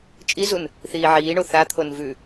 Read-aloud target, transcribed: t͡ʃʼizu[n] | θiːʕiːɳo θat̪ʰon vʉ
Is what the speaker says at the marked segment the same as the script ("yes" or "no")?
yes